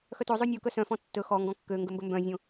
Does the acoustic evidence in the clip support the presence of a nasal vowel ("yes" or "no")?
yes